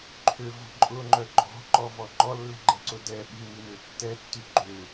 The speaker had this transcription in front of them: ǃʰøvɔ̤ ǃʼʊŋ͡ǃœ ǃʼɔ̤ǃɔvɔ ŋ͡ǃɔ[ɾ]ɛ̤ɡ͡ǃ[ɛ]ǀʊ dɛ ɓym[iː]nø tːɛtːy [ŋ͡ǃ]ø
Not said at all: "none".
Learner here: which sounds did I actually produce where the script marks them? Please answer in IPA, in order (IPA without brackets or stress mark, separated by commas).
lː, ɛ, i, ɡ͡ǃ